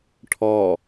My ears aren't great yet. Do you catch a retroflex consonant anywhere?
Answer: yes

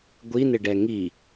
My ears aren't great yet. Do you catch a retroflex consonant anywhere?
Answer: yes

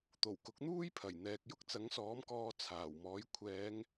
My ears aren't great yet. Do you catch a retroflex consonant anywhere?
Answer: no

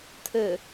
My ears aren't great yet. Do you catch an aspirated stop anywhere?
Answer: yes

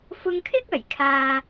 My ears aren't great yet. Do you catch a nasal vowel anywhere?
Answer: no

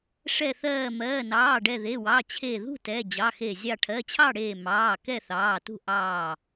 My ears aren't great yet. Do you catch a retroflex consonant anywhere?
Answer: yes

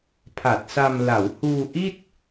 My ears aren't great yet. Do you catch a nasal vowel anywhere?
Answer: no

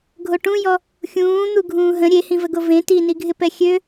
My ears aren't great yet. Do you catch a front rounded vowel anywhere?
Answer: yes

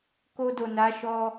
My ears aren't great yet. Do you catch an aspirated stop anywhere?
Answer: no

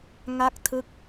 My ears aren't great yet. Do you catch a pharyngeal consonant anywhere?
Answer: no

